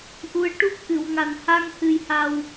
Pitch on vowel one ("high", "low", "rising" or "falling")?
rising